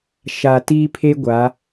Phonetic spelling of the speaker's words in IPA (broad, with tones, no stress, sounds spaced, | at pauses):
ʃ a˨ t iː˦ pʰ e˦ ɡʷ a˨˦